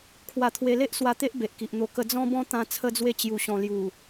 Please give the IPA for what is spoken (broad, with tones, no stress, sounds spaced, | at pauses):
kʰ w a˧ t̪ʰ w e˧ l e˦ ʔ s w a˧ t̪ e˦ ʔ b e˨ ʔ k i˨ ʔ n̪ o˧ k ə˧ d͡z ɔ̃˦ b ɔ̃˦ t̪ ã˧ t͡sʰ ə˧ d͡z w e˧ t͡ɕ j u˨˩ ɕ ɔ̃˨˩ l j u˨˩